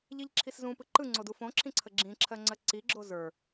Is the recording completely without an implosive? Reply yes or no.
yes